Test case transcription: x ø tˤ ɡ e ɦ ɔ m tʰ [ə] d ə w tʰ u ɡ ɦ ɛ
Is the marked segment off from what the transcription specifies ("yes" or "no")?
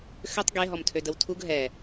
yes